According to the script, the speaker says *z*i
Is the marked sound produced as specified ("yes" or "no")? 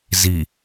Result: yes